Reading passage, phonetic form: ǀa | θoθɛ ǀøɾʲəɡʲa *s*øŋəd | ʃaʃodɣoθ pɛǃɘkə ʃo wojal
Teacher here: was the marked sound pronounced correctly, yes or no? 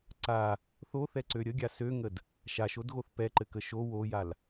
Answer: yes